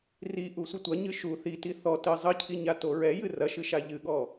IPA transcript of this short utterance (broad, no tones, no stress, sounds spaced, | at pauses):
r i ʔ u sʷ ɨ tʷ ɐ ɲ ɨ ʃ u θ i t i θ ɔ t ɨ zˤ ɨ cʰ i ɲ a t o ɹ ɛ j ɨ r ɐ ʃ ɨ ʃ a ʎ ɨ ɠ ɔ